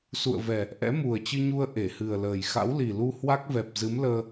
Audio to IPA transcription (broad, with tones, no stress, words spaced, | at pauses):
sṵ˧˨ə̯vɛ˨˩ | ʔɛ̰˧˥mu˨˩ə̯t͡ɕɨ˧ɲu˧ə̯ ʔe˧˩hɨ˨˩ə̯ləː˨˩j xa̰˧˥wli˨˩lu˧ hwa˦˥k̚vɛ˨˩p̚zɨ˨˦mləː˧